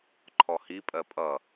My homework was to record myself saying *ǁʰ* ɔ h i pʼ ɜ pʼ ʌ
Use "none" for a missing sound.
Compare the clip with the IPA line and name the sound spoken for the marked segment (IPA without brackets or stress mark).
ǃʰ